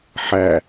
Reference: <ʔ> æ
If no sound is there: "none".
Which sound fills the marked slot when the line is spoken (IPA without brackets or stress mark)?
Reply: ħ